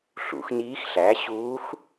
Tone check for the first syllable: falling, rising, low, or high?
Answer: rising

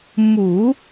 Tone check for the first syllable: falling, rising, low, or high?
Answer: low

